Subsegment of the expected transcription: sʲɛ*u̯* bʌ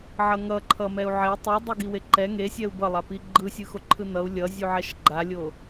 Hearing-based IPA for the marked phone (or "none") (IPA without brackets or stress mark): u̯